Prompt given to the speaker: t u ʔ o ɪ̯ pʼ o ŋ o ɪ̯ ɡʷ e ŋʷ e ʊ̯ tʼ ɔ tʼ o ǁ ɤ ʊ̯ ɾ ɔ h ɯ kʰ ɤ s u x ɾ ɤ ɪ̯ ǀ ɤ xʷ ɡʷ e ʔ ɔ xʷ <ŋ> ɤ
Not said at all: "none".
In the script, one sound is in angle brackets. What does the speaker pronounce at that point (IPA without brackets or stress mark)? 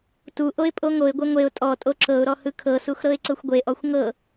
ŋ